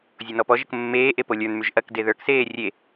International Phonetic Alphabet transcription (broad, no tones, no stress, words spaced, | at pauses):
zʲonɔpɔʒək mːeːʔe polʲə˞nmyʒ ʔɐk deðə˞kseː rʲe